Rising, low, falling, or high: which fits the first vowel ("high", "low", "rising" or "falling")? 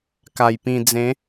low